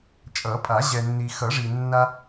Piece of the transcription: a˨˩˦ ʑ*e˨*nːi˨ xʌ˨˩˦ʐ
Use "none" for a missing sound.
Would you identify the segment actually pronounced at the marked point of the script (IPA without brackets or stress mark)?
ɛ˨